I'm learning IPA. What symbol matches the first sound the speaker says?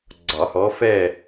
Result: ɡ͡ǀ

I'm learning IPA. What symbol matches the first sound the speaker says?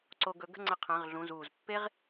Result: ǀ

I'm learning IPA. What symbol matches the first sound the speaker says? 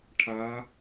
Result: ʈʰ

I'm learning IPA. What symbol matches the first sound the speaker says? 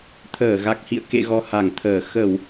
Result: t̪ʰ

